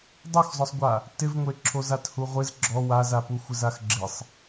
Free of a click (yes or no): no